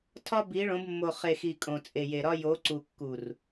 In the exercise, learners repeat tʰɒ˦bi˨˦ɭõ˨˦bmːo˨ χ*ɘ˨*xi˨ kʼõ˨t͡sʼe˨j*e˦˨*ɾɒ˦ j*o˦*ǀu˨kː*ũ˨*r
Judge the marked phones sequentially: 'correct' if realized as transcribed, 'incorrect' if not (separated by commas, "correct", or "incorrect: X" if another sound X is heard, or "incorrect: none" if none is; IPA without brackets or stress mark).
incorrect: e˨, incorrect: e˨, incorrect: o˨˦, incorrect: u˨